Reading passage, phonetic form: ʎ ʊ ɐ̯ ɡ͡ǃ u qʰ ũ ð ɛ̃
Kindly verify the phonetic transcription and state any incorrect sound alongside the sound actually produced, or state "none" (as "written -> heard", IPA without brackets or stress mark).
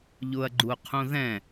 none